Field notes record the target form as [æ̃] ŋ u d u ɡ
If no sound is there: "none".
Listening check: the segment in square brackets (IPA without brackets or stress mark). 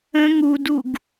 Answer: ə̃